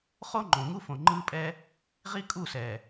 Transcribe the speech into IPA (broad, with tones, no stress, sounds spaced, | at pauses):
χ o˦ ŋ͡ǃ õ˨ ŋ u˦ f õ˨ ŋ͡ǃ ɯː˦ pʼ ɛː˦ | ʁ i˦ kʼ u˦˨ s ɛː˨